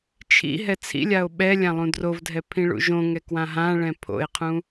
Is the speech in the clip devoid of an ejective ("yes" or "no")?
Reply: yes